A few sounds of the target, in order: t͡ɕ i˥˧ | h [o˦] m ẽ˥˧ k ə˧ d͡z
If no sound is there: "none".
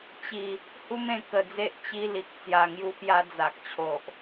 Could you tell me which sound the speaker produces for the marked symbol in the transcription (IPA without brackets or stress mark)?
u˦